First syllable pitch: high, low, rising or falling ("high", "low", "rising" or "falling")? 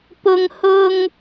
high